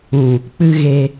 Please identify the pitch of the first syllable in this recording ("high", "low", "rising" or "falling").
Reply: low